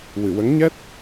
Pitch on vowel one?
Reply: low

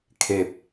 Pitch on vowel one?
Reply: low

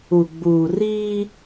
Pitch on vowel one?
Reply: low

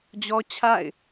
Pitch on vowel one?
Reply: high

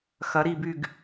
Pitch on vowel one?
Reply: rising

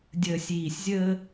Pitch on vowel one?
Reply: low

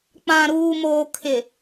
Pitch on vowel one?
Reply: low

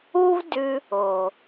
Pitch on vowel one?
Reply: high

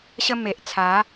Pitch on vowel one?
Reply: high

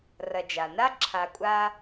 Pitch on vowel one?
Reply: low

